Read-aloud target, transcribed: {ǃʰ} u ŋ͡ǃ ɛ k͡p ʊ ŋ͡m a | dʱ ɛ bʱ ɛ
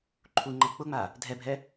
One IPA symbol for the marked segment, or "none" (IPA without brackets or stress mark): ǃʰ